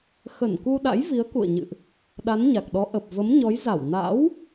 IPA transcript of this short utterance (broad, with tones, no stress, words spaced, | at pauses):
xə˧˩nku˧ ɗa̰˧˥jvi˨˦ə̯kṵ˧˨ə̯ɲɨ̰˧˨ʔ | ɗa˨˦nɲa˨˩k̚ɗɔ˨˦ ʔə˨˩p̚ və˨˦mɲɔ˨˦jza˧˩w na̰˧˥w